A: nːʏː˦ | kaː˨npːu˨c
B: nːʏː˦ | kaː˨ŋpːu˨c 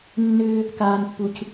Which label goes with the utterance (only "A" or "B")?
A